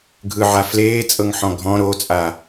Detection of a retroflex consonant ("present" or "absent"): absent